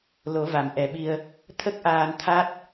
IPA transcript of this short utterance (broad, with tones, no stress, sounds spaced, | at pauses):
l o˨˩˦ v a˨˩˨ m ʔ ɛ˨˩ ɓ i˧ ə̯ | t̪ʰ ə˦˥ k̚ ʔ aː˧ n t̪ʰ a˦˥ t̚